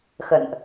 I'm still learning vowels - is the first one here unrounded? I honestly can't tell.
yes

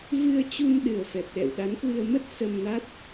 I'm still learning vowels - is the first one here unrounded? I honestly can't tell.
yes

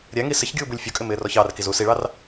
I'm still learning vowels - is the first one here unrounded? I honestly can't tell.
yes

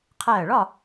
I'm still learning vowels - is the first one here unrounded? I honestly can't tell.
yes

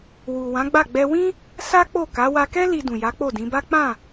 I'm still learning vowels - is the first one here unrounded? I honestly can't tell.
no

